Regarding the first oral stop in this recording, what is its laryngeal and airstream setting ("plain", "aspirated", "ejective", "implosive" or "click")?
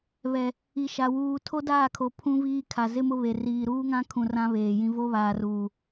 aspirated